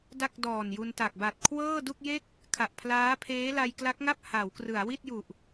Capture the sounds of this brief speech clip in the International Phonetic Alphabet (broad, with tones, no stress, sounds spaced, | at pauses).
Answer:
d a˥˩ k̚ d ɔː˨˩ n j u˧ n t a˨˩ k̚ b a˨˩ t̚ kʰ w ɤː˥˩ d u˥˩ k̚ j e˥˩ k̚ | kʰ a˨˩ ʔ pʰ l aː˦˥ pʰ eː˦˥ l a˧ j k l a˦˥ k̚ ŋ a˥˩ p̚ h a˩˦ w k r ɯ˩˦ a̯ w i˥˩ t̚ j u˨˩ ʔ